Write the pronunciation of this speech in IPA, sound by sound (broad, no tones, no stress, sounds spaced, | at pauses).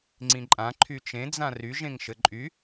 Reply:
ŋ͡ǀ ĩ ǃʼ ã ǃʰ y t͡ʃ ẽ d͡z ã r y ʒ ẽ ŋ ʃ ɘ ǃʼ y